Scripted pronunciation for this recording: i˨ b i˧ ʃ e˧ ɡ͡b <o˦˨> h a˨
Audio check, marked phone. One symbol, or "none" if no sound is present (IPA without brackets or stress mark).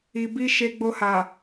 o˧